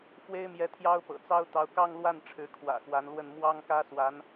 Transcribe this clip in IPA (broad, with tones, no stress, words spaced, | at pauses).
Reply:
fwe˥ɪ̯mjɛ˧˥ t̪ʰjɑ˥ʊ̯pɤ̰˨˩t͡sɑ˥ʊ̯t̪ɑ˧˥ʊ̯ kɑ˥˧ŋlwa˥˩n ʈ͡ʂʰɻ̩˧˥kʰwä̰˨˩xwa˧˥nlwə˥˩n mwɑ˥ŋkä˥swa˧˥n